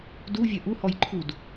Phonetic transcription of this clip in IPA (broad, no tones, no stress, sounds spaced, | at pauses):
d u vʲ ɐ ʔ u h ɔ j ǃʰ u d